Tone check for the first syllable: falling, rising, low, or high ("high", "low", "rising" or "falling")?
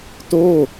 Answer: falling